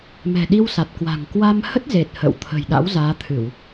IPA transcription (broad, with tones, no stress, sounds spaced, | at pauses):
m ɛ̤˨˩ ɗ i˧ w s a˨˩ t̚ k w a̤˨˩ ŋ k w a˧ m h ə˦˥ t̚ z e˨˩ t̚ h ə̰ː˧˨ w t̪ʰ ə̤˨˩ j ɗ a̰˧˥ w z aː˨˦ t̪ʰ ɨ˧˩˨ w